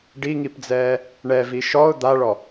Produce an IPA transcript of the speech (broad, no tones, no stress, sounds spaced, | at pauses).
ɖ i ŋ i p d͡z ɛː | ɳ ɛ v i ʃ ɔ ʊ̯ d̪ a ɭ ɔ